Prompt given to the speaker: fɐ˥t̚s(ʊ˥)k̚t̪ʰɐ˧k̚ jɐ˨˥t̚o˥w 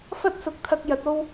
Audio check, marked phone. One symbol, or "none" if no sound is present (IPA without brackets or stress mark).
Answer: ʊ˨˥